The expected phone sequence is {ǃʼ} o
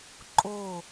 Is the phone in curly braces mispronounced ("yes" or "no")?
no